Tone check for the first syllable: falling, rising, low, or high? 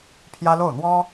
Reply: high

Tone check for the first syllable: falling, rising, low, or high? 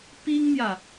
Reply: high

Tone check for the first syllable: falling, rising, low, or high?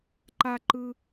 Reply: high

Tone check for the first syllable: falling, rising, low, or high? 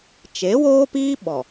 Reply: rising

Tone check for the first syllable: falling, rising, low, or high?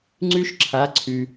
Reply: high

